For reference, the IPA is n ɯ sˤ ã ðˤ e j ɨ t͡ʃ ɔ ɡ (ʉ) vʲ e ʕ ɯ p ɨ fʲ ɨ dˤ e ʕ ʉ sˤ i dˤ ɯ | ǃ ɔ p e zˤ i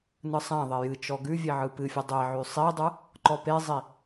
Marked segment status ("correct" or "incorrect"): correct